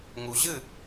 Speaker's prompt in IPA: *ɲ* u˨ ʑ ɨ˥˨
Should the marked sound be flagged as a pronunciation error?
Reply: yes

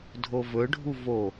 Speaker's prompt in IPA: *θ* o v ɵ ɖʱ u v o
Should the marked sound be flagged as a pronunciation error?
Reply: yes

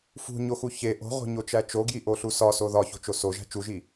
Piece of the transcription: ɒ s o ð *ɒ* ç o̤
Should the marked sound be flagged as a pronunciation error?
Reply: no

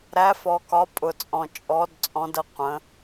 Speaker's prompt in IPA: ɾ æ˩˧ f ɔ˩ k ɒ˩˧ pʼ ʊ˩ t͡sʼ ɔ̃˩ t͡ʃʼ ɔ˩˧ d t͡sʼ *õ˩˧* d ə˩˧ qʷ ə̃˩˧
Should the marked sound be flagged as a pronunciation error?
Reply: yes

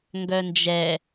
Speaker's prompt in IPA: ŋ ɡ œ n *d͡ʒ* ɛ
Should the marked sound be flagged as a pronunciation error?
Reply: no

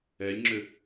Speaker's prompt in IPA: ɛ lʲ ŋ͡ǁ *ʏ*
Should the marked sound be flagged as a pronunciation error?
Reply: no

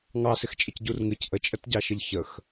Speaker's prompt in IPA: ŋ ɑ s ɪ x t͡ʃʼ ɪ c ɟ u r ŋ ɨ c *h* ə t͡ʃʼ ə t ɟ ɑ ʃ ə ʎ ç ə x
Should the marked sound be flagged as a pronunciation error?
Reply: yes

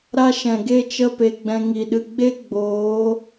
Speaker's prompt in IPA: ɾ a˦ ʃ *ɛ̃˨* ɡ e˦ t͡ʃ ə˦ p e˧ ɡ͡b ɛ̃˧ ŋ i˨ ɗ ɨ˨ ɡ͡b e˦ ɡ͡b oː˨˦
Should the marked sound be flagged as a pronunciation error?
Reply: no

